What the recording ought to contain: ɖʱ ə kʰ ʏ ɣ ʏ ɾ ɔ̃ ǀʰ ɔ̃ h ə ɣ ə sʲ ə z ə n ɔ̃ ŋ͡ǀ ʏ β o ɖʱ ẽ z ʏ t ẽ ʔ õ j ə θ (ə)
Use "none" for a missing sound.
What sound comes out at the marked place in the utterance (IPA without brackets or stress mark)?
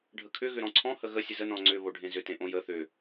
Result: ʏ